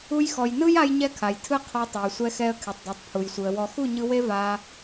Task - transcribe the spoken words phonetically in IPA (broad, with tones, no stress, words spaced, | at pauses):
u˧jxɔ˨jnɯ˦j a˦jɲɛ˦kʰa˨jtʰɯ˦ qʰɔ˧tˤo˨jsʷɛ˧ xɛ˧ə̯ kʰe˨tˤdo˨tˤpʰu˨jsʷɯ˨ə̯ wɔ˨xu˦˨ɲɯ˧ we˦va˧